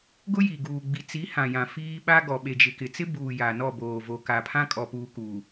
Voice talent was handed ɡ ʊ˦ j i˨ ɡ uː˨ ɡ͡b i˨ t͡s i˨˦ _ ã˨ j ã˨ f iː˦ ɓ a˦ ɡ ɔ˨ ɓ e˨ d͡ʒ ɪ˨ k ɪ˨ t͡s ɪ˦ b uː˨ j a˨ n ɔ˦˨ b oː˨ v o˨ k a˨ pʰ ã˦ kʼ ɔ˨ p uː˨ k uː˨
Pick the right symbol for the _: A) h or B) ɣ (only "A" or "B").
A